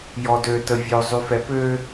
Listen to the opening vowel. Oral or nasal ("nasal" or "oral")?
oral